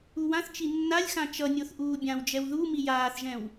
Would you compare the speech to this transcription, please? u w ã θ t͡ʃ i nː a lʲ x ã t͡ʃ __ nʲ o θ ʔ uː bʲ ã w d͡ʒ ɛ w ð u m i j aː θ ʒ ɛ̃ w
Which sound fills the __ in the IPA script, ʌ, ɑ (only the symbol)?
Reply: ʌ